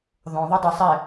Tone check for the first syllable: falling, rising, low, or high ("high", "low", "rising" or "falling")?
low